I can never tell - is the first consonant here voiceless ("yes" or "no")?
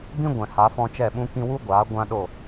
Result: no